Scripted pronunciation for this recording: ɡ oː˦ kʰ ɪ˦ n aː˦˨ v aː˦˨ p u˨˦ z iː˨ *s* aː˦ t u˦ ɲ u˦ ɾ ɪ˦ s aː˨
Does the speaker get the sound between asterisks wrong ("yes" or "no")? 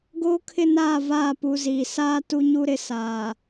no